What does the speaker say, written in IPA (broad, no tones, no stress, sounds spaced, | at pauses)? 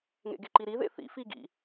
ŋ ḛ ɡ e ǃ i ɾ i ð ḛ θ ḭ f i ɡ ḭ